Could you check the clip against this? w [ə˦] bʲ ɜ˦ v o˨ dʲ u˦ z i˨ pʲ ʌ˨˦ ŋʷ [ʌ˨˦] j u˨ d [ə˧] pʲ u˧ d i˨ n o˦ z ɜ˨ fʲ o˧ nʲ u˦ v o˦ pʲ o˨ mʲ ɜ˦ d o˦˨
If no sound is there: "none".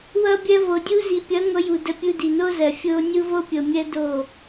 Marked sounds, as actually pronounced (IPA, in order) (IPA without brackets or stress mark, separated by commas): ʌ˦, ʌ˨˦, ə˧